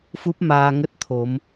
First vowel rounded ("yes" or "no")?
yes